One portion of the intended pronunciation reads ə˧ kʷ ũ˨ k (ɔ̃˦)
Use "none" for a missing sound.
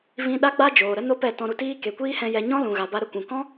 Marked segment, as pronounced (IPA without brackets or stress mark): ɔ̃˦